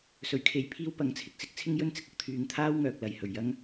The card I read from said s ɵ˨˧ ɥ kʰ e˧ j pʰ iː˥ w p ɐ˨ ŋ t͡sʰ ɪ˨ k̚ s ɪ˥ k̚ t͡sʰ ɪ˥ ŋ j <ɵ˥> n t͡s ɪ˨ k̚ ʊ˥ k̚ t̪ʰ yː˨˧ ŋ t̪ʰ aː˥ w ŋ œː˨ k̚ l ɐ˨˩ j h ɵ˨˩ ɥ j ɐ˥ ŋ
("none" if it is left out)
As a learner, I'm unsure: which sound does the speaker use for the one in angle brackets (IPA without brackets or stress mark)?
ɵ˥